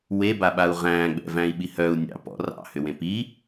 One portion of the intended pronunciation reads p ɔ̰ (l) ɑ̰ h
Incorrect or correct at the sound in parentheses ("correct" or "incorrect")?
incorrect